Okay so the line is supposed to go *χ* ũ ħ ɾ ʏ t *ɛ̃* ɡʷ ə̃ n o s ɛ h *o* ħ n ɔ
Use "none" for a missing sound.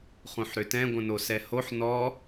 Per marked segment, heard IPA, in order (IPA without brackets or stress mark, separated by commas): χ, ɛ̃, o